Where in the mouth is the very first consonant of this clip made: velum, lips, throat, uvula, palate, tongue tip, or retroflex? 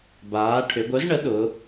lips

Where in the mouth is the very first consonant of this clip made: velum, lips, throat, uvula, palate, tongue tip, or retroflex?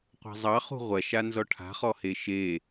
uvula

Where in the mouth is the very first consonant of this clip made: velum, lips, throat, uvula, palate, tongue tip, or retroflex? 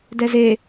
tongue tip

